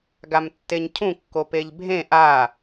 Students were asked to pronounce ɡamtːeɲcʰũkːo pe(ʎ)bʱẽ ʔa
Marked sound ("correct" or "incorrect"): correct